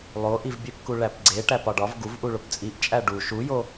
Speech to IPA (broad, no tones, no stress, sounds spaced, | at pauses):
lˠ o ʔ i v bʲ e p k u ɭ æ p ɡ͡ǀ e ʈ æ p ɒ ɖ ɒ v ɡ u v ʔ u ɭ o p t͡sʼ i ʔ t͡ʃʼ æ ɖ u ʃ u j o